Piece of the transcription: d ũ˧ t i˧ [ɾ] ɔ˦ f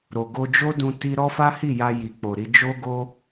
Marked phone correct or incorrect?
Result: correct